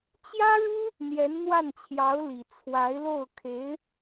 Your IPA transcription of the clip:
t͡ɕ j ä˥ ɻ u˥ | n̪ j ɛ˧˥ n n̪ w a˥˩ n t͡ɕʰ j ɑ˧˥ ʊ̯ l i˨˩ t͡sʰ w a˧˥ ɪ̯ l o˥˩ ʊ̯ kʰ e˧˥ ɪ̯

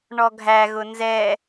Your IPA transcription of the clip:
ɳ ɔ ɡʱ æ ɣ ʊ n z ɛ

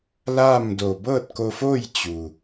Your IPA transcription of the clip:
l aː˥˨ m d o˧˩ b ɤː˥˨ t̚ k o˧ f oː˥˨ j t͡ɕ u˩

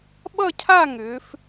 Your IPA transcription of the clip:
ɓ ʌ˥˧ cʰ a˥˧ ŋ ʏː˩˧ f

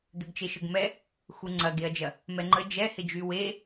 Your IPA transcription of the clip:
d̪ ʏ ɡ t͡ʃ e ʃ ə ɡ m ɛ | x u ŋ͡ǀ ɐ ɡ e ɐ̯ d͡ʒ ɐ | m ɛ ŋ͡ǃ ə d͡ʒ ɛ h ɪ d͡ʒ y w e

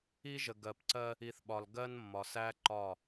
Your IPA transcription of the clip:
i˦ ʒ ə˨ ɡ ɜ˨ p ǀ ɜ˦ | i˨ θ ɓ ɒ˨ l ɡ ɜ˦ n mː ɒ˨ s æ˦ ǃ ɒ˦˨

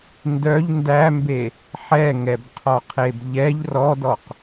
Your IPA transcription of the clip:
n d œ ʎ n d æ m b e | ħ ɛ ŋ ɛ b qʰ ɔ qʰ e b ʎ ɛ ʎ r ɔ d ɔ q

